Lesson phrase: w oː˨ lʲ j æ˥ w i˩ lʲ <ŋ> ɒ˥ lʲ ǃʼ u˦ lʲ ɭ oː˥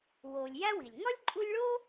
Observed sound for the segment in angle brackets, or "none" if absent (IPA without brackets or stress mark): ŋ